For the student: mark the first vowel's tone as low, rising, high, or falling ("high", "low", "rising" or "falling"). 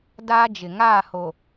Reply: high